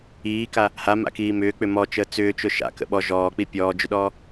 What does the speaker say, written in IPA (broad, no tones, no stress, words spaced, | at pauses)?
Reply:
iːka | hama̰kiː mʏːk͡pʏ mɔt͡ʃəː t͡sʏːt͡ʃʊ ʃa̰kə̰ ɓɔ ʒɔːk͡pi pʲɔːd͡ʒʏɗɔː